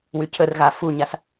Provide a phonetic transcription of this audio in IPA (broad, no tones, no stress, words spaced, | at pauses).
wycʰərɣa fuɲas